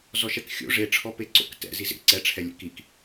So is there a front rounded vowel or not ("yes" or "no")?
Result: no